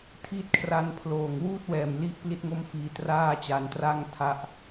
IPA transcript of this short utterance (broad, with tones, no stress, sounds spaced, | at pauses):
tʰ i˦˥ t̚ kʰ r a˦˥ n pʰ l oː˨˩ ŋ w uː˥˩ t̚ w ɛː˨˩ m l i˦˥ ʔ p l i˥˩ t̚ ŋ o˥˩ m f iː˧ t r aː˥˩ t͡ɕ a˧ n t r a˥˩ ŋ tʰ a˦˥ ʔ